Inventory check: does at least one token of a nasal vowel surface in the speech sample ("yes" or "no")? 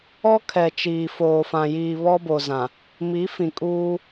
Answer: yes